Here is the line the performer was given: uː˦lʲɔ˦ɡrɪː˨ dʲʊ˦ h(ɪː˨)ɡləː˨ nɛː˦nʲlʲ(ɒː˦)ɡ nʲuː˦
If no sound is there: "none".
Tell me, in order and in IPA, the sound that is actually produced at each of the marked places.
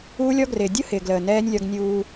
ɪː˨, ɒ˦

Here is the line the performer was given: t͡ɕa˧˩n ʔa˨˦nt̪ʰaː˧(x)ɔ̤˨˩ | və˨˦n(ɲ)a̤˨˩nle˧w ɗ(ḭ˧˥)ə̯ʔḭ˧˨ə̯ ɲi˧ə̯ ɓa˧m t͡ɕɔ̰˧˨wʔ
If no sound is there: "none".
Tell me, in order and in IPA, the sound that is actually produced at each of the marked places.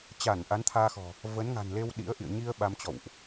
x, ŋ, ḭ˧˥

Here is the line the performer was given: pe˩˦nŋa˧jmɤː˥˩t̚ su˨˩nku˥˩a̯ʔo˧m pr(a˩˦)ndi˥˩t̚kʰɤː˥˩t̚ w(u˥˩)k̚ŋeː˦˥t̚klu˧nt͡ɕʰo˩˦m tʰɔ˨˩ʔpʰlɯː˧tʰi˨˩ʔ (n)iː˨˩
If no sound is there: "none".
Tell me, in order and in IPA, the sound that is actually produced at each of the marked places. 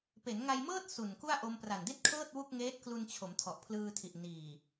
a˨˩, u˥˩, n

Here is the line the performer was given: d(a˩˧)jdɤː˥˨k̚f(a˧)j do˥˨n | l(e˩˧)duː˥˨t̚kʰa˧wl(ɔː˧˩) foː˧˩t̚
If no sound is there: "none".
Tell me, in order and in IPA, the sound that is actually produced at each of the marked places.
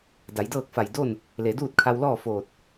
a˩˧, a˧˩, e˩˧, ɔː˥˨

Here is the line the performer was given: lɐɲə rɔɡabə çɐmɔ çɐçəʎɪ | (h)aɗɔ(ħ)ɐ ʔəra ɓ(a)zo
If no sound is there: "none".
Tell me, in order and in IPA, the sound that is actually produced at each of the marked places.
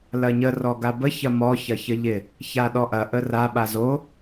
ç, ʔ, a

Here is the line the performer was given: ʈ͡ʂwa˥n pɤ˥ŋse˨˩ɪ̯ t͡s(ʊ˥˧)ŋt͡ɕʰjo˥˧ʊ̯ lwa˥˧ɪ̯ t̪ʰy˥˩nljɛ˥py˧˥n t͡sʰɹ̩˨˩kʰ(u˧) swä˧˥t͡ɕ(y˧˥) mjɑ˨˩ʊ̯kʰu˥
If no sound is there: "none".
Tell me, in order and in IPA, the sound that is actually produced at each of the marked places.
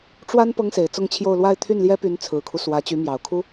ʊ˥˧, u˦, y˧˥

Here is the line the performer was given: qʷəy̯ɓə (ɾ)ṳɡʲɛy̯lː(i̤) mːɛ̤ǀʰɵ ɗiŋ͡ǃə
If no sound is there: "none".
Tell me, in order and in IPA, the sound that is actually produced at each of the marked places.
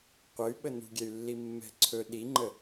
n, i

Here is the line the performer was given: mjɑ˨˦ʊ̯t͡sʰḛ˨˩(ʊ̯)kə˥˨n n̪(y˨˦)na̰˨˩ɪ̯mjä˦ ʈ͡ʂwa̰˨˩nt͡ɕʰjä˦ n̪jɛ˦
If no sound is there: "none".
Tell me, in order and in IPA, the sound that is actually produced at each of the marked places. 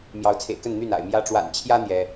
ɪ̯, y˥˨

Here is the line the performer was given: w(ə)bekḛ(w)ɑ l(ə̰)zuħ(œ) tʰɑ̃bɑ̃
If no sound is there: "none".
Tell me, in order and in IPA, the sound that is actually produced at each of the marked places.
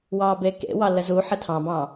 ɑ, w, ə, ə

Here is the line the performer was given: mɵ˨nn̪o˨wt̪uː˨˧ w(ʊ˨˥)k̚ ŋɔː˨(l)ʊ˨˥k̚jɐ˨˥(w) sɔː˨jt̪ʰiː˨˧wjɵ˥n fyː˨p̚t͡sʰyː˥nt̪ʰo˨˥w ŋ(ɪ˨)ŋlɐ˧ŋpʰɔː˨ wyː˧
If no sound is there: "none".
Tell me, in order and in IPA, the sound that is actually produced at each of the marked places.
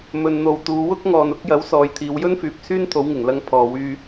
ʊ˥, n, w, ɪ˨˩

